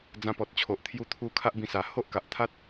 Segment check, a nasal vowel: present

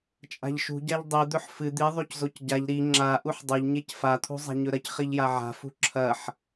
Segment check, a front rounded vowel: absent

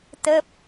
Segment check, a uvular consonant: absent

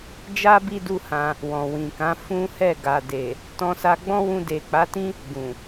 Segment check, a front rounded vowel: absent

